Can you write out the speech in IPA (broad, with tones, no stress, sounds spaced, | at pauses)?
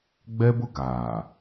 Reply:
ɡ͡b ɛ˦ b ʊ˦ ɡ aː˨